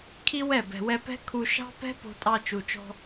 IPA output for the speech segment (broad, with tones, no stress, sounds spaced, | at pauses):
kʰ i˦ w ɛ˦˨ b ɛ̤˨ w ɛ˧ p ɛ̤˦ kʰ u˧ ʃ ɑ̤˦ p ɛ̤˦ p o̤˧ tʼ ɑ˧ t͡ʃ u˨ t͡ʃ ɔ̤˧